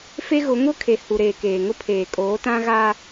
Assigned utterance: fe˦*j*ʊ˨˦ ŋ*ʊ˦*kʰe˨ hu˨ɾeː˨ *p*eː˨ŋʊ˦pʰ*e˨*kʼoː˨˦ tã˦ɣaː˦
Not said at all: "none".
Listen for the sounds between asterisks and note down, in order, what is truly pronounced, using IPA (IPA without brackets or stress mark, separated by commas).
ɣ, ʊ˦, k, eː˨